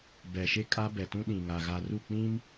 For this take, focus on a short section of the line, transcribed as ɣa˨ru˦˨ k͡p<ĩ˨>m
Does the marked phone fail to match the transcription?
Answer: yes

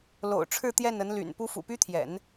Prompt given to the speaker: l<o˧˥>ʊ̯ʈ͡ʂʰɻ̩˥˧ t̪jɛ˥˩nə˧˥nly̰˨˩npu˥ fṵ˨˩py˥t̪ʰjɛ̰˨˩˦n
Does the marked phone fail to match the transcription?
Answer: yes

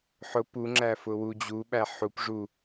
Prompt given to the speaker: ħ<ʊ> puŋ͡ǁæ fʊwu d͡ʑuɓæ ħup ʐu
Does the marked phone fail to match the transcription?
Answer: no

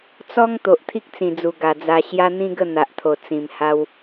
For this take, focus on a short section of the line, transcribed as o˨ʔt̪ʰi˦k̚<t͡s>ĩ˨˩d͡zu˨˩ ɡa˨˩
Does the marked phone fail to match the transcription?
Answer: no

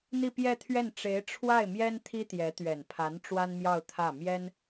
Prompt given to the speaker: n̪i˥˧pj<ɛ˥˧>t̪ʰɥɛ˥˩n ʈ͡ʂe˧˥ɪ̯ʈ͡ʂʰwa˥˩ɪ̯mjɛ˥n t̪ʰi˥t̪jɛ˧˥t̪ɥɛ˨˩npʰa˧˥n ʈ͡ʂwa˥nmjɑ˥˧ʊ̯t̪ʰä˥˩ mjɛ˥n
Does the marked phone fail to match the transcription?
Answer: no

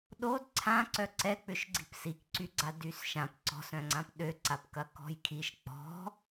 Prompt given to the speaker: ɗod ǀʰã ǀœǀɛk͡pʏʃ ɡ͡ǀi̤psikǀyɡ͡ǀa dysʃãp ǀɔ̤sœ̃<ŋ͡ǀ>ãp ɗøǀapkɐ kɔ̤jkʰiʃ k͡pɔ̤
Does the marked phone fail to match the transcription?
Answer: no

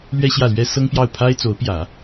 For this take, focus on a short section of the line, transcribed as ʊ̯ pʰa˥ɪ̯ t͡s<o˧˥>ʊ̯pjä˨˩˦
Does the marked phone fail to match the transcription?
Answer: no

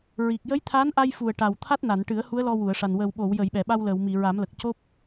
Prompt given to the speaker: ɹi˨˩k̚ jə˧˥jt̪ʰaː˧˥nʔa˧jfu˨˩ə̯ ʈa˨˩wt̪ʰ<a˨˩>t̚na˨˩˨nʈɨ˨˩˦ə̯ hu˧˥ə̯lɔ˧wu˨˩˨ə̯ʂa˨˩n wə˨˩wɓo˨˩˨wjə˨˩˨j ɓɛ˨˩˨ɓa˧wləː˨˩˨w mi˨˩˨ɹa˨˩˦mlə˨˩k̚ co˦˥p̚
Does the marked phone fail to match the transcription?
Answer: yes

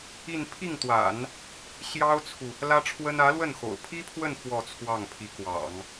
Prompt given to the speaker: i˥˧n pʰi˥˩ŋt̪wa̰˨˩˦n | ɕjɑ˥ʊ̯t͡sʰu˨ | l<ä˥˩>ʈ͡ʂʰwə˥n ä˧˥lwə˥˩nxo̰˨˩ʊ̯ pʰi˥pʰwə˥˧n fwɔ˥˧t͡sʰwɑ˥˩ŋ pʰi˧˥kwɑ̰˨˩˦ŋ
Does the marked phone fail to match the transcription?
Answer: yes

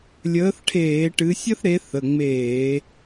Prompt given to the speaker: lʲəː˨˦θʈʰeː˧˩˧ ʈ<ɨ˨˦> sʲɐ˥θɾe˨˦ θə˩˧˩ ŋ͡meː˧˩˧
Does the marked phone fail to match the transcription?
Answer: no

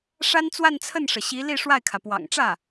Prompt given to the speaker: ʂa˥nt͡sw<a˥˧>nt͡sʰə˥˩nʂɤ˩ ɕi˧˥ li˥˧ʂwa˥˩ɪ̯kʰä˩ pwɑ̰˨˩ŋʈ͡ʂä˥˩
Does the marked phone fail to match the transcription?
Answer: no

